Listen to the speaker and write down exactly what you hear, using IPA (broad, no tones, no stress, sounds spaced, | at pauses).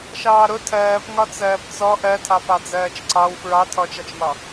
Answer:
ʃ ɑː ɾ ʊ tʰ ɜː p ŋ ɒ t͡s ɜː p t͡s ɔ ʔ ɜ tʰ ɑ p ɑ d͡z ɜː t͡ʃ ǀ ɑ w f ɹ ɑ tʰ ɔ t͡ʃ ɑ t͡ʃ m ɒ